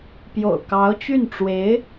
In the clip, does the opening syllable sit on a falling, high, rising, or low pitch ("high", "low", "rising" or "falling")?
low